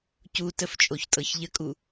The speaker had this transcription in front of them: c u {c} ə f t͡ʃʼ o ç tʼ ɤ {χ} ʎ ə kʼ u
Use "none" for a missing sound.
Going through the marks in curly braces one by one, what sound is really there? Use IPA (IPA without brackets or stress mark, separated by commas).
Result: t, ç